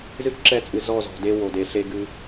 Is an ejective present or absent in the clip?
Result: present